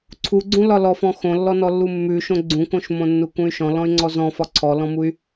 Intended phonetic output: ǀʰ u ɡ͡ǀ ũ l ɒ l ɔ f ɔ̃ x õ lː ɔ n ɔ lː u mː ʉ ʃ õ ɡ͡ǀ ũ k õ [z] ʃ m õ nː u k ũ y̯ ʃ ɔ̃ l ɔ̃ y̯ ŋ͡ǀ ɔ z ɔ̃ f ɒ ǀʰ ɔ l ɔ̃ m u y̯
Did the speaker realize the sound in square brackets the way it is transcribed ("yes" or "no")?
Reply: no